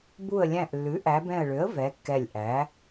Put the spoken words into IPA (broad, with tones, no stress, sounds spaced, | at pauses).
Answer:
b u˧˩ ə̯ lʲ æ̃˧˩ ʔ lː ʉ˩˥ ʔ æ˩˧ b ɛ̃˧˩ ə̯ ɭ ø˩˥ ə̯ v ɛ˩˧ kː ɛ˧˩ lʲ ʔ æ˩˥